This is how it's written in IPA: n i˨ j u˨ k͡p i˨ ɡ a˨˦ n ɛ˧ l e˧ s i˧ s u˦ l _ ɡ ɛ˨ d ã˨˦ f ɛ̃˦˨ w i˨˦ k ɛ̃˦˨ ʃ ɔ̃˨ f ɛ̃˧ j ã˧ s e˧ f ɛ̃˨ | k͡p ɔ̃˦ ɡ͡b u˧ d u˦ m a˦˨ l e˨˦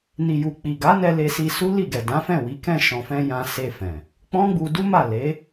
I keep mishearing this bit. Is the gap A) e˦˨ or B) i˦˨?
B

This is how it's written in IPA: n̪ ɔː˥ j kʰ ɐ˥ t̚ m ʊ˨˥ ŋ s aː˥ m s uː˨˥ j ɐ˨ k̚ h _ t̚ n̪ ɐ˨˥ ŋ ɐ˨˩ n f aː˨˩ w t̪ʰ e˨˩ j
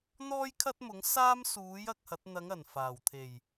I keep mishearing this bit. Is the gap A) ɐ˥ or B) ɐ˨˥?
B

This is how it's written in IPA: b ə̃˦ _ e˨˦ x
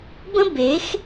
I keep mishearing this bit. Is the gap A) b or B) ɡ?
A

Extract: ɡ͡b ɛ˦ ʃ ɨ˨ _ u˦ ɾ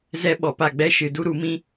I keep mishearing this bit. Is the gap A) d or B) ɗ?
A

